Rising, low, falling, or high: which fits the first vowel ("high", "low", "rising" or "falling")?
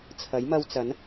rising